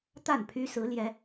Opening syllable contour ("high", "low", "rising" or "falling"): falling